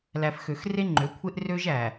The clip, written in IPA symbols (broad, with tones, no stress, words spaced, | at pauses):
læ˨fxø˨x re˦ŋ͡ǃø˨˦kʷʰe˦ʔ rø˦ʒæ˨